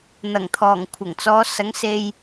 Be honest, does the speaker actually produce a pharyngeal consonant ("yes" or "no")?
no